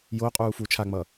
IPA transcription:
j o qʼ uː f uː t͡ʃʰ a ŋ͡m ʌː

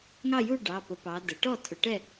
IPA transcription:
ŋ ɑ˥˨ j u˥˨ ɖ ɑ˩˧˩ p ə˩˧ p ɑ˩˧ d ə˩˧ ʈ ɔ˥˨ tʰ ʊ˩˧ ʈ ɛ˥˨

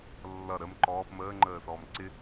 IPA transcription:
lː ʌ ɾ ə m ǃ ɔː p m əː ŋ͡ǃ əː s ɔː m ǀ ɪ

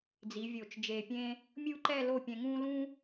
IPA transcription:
d͡z i˩˧ vʲ o˧˩ t͡ʃ d͡ʒ e˧˩ pʲ ẽː˥ | mʲ u˥˧ ǃ ɛ˥˧ l o˥˧ pʲ ɛ̃˧ ŋ ũː˥ l ũː˥

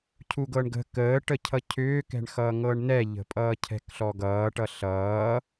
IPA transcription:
cʰ u ɡ ɤ ɳ ɡ ə̤ k əː ʈ ə cʰ ʌ cʰ ʏː k ɛ̤ ɳ x ʌː ŋ ɤː ɳ n ɛ ʎ ə̤ pʼ ʌː cʰ ɛ̤ k ɬ ɔ ɡ ʌː ʈ ʌ ɬ ʌː

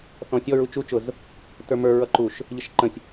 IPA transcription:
θ ɔ̃ sʲ ɔ ɹ u t͡ʃ u t͡ʃ ʊ z | t ə˞ m ə˞ ɹ ʌ ǃ u ʃ | ʎ ə ʃ ǃ ə̃ sʲ

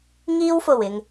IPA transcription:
ŋ iː˥ w f o˨˩ w ɪ˨ ŋ

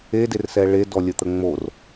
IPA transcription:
e d e r s ɛ ɭ e d ɔ lʲ ə t̪ ə ŋ͡m o r

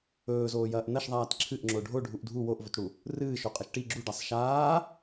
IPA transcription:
ɵː z oː j ɐː ʔ n ɐ ʃ ðˤ aː t ǁʰ ɨ ʔ ŋ͡ǁ o ɖʱ o ɖʱ u ʔ dʱ u w o ʔ v ɵ t ɽ u | r ɨː ʃ o qʼ ɐ ʃ ʈ i ɡ͡ǁ u ɖ a sˤ ʃ aː

